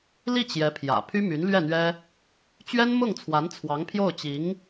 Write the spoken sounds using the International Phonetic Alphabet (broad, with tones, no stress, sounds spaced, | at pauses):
l i˥˩ t͡ɕ j ɛ˧˥ pʰ j ä̰˨˩ pʰ y˥ m y˧˥ n l ɥ ɛ˥˩ n̪ ɥ ɛ˥ | t͡ɕ ɥ ɛ˥ n m ʊ˥˩ ŋ t͡sʰ w a˧˥ n t͡sʰ w ɑ˧˥ ŋ pʰ j o˥˩ ʊ̯ t͡ɕ i˧˥ ŋ